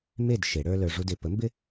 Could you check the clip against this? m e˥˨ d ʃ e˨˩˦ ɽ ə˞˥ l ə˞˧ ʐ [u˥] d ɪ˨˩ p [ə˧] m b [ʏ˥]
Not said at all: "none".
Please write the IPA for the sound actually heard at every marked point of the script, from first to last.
u˧, ə˨˥, ɪ˥

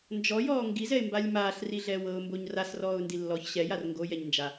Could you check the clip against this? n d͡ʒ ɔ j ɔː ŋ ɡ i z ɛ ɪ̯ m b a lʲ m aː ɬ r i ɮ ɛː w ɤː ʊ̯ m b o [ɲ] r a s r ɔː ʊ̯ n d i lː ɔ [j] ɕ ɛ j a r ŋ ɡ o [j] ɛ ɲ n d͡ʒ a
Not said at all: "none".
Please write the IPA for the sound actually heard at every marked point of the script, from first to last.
ɲ, ç, j

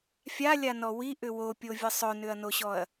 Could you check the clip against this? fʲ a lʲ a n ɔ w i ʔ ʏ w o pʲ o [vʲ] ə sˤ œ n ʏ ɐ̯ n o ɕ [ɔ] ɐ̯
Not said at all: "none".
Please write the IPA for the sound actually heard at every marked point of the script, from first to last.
vʲ, ɔ

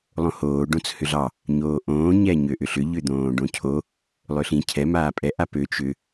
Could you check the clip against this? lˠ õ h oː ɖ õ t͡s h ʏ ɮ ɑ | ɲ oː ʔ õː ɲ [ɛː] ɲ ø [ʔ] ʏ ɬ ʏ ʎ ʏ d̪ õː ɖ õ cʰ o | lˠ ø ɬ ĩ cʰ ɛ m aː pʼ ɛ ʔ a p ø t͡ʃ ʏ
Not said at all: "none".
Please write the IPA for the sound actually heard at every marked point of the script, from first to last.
ɛ, ʔ

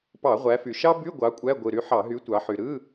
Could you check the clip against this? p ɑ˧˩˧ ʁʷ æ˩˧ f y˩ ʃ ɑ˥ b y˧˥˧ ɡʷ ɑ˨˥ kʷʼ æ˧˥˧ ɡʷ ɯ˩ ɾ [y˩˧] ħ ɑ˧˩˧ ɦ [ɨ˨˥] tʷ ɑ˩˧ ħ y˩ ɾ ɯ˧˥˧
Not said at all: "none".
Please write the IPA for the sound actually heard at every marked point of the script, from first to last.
y˨˥, y˨˥

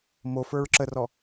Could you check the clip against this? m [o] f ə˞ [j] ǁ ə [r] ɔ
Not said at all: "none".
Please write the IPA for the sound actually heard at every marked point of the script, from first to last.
o, ɹ, r

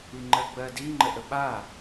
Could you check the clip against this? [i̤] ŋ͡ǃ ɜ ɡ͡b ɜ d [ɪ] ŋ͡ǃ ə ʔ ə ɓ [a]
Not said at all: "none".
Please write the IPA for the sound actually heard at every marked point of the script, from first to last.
i, i, a

